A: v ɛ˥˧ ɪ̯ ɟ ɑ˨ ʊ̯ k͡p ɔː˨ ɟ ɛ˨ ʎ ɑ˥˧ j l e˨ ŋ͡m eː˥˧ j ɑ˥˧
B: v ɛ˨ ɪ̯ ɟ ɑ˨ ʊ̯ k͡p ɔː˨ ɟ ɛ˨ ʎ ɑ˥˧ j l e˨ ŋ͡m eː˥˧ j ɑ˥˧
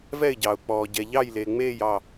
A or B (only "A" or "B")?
A